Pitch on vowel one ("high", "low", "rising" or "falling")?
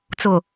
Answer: low